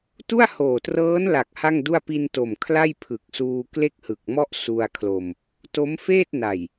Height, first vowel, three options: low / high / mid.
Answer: high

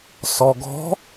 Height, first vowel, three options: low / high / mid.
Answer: mid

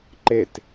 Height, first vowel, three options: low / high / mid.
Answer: mid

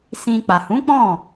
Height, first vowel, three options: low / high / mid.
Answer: high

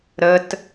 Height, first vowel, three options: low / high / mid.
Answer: mid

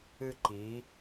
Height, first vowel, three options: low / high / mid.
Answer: high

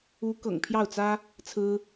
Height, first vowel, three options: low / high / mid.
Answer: high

